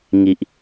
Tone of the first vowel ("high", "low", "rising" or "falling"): low